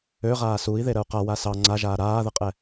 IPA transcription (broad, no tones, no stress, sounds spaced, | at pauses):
ø ʁ aː s u i̯ ð e ɾ ə u̯ q a w a s ɑ ŋ͡ǀ a ʒ aː ɾ aː ð ə qʼ ɛ